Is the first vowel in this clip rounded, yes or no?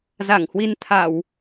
no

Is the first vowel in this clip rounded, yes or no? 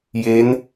no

